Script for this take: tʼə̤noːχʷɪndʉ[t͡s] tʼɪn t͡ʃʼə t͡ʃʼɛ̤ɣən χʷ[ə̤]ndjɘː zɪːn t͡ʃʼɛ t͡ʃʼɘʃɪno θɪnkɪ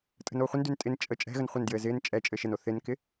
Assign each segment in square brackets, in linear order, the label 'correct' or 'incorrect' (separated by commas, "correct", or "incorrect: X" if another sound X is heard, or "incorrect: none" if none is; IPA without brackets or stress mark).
incorrect: n, incorrect: ə